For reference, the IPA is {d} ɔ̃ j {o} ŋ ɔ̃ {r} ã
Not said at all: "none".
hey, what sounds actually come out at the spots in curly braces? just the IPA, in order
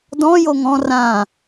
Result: d, o, r

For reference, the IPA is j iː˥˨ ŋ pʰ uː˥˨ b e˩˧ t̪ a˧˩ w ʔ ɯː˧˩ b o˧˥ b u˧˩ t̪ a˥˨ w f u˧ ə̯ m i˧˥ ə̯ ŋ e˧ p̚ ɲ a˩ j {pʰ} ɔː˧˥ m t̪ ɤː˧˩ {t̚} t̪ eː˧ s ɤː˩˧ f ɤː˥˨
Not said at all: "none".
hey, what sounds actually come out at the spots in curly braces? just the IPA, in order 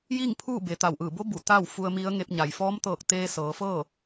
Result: f, k̚

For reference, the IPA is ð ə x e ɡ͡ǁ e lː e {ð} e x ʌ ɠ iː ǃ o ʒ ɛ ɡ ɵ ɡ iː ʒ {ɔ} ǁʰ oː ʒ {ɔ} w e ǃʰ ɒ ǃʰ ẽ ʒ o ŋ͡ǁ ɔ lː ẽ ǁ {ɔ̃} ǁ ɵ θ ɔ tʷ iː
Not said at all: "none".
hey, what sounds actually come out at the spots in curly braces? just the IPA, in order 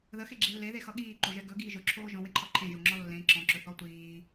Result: ð, ɵ, ɔ̃, ɔ̃

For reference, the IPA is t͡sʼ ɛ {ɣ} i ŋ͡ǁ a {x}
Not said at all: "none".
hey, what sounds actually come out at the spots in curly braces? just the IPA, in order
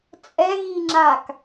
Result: ɣ, k

